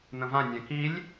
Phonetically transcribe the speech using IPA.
n̪ ə̃ v ã nʲ ɛ̃ k i lʲ

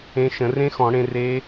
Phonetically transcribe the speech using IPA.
ẽ˨˥ ʃ ə̃˧˩˧ r ẽ˦˥ x ɔ̃˧˩˧ ɽ ẽ˧ r e˦˥

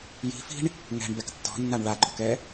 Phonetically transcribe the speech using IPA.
j i̤ f i̤ ɳ | ŋ ɛ̤ ɳ b ɛ k tː ɔ̤ nː a ɳ ɭ a ɡ͡ǃ ɔ k ɛ

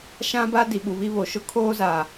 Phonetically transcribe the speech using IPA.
ʃ ã˦ b a˦ d i˨ ɓ u˨ β i˦ β o˨ ʃ ʊ˦ kʰ oː˦ z aː˨

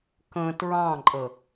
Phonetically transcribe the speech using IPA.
k ə̃ t ɹ ɑ̃ ǃʼ ə

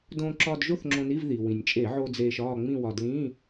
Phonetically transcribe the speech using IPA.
d õː˧ ǁ ɒː˧ d ʒ o˥˧ θ ŋ͡ǁ õ˧ n i˧˥˧ v ð i˩ w ĩ˩ nʲ t͡ʃʼ e˧˩˧ ʕ o˧ d͡z eː˧ ʃ ɒː˥˧ ŋ͡m ĩ˥˧ w ɒ˧ d l ĩː˧˥˧

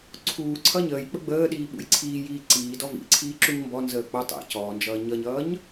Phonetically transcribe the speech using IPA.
ǀʰ uː ǀʰ ʌ ɲ əː j k͡p ə ɡ͡b əː ɗ iː ɓ ṵ j ǀʰ iː j iː ǀ iː d ɔ v ḭ ǀʰ iː ǁ u ɲ m b ɔ n z əː k͡p ʌ tˤ ḭ c ɔː n d͡ʒ ʌː ɲ ʌ ɲ ʌː ɲ

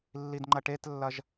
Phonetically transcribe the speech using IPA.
lː i d ŋ͡ǃ ɐ ʈ e t lː ɐ ʒ

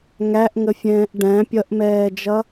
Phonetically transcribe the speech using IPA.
ŋ æ ʔ ŋ ə fʲ ɛ̃ː ʔ ɖ æ̃ pʲ ʌ ʔ m ɛː d͡ʒ ʌ

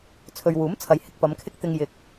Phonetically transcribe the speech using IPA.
t͡sʰ ɵ˨ ɥ w uː˨˥ m t͡sʰ ɐ˨ j h ɪ˨ k̚ p ɐ˨˧ m kʰ ɪ˥ k̚ t̪ ɪ˧ ŋ j ɪ˨˥ k̚

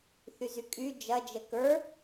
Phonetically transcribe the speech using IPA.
θ y z y kʼ y d͡ʒ ɐ d͡ʒ ə k ə˞

